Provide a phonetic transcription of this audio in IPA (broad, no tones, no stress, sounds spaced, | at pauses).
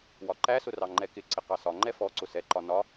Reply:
w ɒ ǃ æ s ʊ r ɑ ŋ͡ǃ ɛ k ɪ ǀ ɪ q ɑ s ɒ ŋ͡ǃ ɛ f ɔ ǀ ʊ s ɛ ǃ ɒ n ɒ